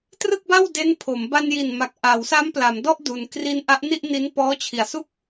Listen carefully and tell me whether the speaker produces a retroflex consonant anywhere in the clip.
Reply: no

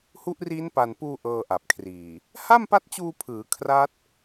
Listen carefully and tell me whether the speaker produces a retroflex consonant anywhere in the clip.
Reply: no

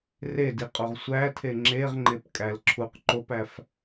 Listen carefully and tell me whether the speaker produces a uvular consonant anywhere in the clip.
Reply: yes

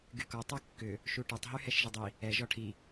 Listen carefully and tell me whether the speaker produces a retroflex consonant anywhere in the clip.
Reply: yes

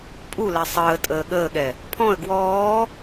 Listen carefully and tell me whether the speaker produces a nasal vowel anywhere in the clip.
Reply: yes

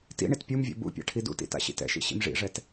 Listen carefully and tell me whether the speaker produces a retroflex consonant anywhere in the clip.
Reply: yes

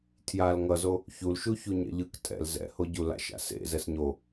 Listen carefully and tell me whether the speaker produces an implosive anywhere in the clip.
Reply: no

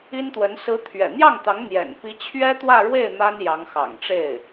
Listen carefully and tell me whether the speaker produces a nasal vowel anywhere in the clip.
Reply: no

